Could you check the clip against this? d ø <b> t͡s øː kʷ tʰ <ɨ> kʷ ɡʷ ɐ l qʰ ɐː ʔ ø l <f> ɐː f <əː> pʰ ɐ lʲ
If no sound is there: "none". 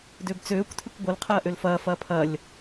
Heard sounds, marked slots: b, ɨ, f, ɐː

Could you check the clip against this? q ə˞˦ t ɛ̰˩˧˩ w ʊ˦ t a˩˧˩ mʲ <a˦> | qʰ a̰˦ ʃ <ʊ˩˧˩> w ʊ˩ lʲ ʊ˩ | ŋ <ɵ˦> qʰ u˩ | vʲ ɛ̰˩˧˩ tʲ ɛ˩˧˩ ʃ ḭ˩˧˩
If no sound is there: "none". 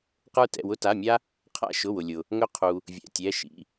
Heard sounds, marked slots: a˦, ʊ˩˧˩, ɵ˦

